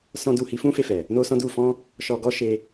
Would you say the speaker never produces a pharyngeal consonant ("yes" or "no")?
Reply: yes